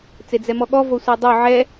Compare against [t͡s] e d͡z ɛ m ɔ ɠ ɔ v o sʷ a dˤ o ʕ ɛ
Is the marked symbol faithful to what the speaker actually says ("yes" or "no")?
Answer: yes